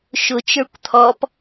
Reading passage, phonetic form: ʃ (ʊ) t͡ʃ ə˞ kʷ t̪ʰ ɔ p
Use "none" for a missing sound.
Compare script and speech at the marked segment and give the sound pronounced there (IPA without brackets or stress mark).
ʊ